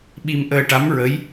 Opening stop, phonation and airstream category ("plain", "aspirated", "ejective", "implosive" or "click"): implosive